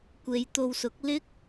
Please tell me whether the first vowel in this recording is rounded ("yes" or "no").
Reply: no